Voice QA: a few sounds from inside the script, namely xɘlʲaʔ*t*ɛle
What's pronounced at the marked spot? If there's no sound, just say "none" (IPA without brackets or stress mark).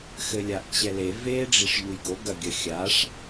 t͡ɕ